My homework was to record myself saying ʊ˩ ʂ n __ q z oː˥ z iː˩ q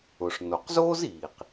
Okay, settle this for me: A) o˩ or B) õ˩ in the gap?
A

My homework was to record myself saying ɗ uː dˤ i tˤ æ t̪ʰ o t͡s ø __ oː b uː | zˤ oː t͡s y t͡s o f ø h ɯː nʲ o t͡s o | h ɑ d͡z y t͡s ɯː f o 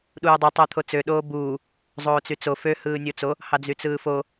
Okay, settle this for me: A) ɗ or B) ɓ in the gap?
A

